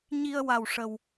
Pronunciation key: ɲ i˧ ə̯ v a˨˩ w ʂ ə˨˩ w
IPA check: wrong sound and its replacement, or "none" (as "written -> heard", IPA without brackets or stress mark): v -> w